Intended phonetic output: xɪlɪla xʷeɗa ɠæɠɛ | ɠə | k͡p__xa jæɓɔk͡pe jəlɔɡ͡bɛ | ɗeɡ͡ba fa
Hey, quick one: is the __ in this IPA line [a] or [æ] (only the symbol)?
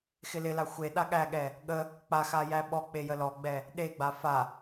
a